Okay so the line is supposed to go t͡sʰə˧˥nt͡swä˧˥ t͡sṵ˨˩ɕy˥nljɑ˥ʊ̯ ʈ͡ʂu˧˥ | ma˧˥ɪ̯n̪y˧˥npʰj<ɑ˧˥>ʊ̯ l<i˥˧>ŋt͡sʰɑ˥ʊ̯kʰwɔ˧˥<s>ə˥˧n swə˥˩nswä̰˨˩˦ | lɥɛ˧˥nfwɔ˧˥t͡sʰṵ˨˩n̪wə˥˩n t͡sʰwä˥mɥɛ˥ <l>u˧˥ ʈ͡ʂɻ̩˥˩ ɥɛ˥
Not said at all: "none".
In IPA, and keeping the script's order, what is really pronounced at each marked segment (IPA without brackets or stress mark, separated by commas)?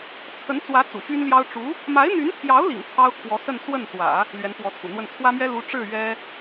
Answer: ɑ˧˥, ḭ˨˩, s, l